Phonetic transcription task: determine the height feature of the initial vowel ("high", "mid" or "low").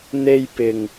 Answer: mid